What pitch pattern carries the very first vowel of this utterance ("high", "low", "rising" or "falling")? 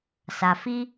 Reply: low